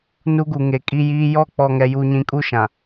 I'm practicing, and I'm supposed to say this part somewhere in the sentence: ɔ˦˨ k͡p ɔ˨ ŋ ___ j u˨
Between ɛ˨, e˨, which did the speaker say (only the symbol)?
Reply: ɛ˨